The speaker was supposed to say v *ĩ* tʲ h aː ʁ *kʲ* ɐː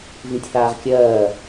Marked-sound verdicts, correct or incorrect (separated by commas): correct, correct